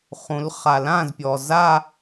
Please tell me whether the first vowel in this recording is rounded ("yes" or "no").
yes